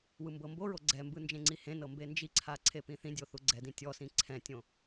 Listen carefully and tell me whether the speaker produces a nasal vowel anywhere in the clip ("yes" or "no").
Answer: yes